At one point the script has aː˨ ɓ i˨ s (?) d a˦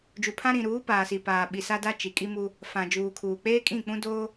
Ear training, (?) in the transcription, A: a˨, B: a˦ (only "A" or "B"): B